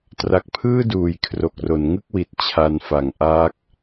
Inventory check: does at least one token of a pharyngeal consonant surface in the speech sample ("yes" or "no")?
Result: no